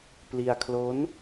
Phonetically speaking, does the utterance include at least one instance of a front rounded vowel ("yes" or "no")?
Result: no